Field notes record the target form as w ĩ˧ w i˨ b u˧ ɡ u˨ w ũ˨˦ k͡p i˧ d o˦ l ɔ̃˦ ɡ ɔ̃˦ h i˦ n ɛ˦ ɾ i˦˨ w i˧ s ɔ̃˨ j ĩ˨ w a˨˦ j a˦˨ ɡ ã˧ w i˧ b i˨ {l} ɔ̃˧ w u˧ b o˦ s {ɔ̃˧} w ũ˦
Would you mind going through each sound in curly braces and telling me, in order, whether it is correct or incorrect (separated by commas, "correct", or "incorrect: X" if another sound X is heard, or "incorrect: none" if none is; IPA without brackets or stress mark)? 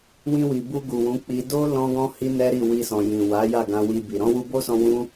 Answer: incorrect: ɾ, correct